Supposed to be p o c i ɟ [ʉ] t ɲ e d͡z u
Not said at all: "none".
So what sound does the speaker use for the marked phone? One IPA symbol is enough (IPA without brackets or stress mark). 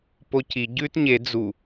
ʉ